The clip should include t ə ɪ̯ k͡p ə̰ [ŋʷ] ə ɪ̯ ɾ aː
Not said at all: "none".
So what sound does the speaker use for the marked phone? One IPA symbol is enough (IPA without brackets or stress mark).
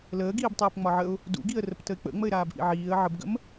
ŋ͡m